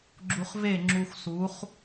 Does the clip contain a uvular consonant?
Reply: yes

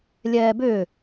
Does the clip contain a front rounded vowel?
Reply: yes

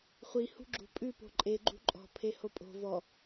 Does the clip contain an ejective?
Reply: yes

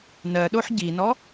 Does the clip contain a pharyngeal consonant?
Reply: yes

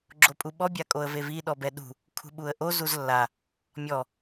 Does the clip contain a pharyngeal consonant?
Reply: no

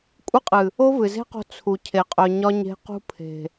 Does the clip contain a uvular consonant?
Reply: yes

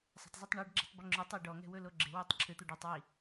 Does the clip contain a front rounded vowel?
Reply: yes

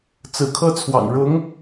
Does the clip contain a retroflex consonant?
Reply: yes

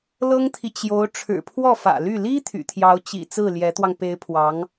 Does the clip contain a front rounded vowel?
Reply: yes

